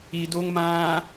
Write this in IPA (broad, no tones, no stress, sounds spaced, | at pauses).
i d o ŋ m ãː